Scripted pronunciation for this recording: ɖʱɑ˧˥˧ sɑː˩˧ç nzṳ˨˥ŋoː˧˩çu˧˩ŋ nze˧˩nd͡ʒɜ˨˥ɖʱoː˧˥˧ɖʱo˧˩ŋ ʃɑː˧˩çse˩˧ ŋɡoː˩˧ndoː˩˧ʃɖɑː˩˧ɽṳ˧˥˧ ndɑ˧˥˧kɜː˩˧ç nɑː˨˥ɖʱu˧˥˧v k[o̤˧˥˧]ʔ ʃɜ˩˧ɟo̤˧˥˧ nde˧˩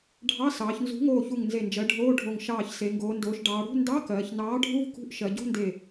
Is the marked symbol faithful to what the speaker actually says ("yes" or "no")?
no